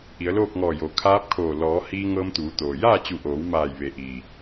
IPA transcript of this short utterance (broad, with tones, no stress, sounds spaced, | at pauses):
ʔ i˩˧ ə̯ l oː˥˨ k̚ ŋ ɔː˧˩ j o˩ kʰ aː˧˥ p̚ kʰ oː˧˩ l ɔː˩˧ h iː˧ ŋ ɤː˧ m t̪ uː˩˧ t̪ oː˩ j aː˥˨ t͡ɕ u˧˩ ʔ oː˩˧ w m aː˧˩ j ʋ e˩˧ ʔ iː˩